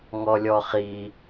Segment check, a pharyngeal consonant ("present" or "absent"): absent